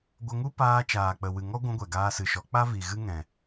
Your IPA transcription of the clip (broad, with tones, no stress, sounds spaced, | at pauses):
ɡʷ ə˧ ŋ u˦ p aː˧ t͡ʃ aː˨ k͡p ə˨ w ɨ˨ ŋ ɔ˦ ɡʷ ũ˧ ɡʷ ɛ˨ ɡ aː˧ s ɨ˨ ʃ ɔ˨˦ k͡p a˦ v i˨ ɣ ɨ˦ ŋ ɛ̃˨